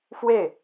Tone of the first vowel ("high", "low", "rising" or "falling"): falling